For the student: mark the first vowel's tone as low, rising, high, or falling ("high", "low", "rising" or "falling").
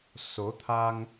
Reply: rising